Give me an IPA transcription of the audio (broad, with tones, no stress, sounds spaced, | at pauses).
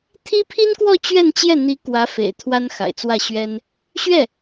t̪ʰ i˥ pʰ i˥ n k w ɔ˥˧ t͡ɕ ɥ ɛ˥˧ n t͡ɕ j ɛ˥˩ n̪ i˧˥ k w ä˧˥ f ḛ˨˩ ɪ̯ t̪ʰ w a˥ n x a̰˨˩ ɪ̯ t͡s w ä˥˩ ɕ ɥ ɛ˥ n | ɕ ɥ ɛ˥˩